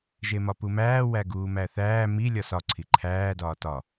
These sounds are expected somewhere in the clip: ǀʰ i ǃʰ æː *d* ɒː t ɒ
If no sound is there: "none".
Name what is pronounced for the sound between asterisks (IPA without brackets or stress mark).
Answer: d